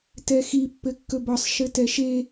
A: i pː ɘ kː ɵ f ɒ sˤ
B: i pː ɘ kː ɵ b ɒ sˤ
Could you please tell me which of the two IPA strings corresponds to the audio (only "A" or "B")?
B